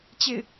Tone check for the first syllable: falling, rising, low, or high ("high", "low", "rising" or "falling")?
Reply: falling